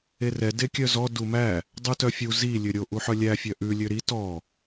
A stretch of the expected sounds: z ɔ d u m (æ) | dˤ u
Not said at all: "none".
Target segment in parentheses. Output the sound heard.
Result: æ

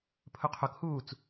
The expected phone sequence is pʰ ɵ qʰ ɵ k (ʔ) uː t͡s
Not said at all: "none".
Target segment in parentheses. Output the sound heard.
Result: h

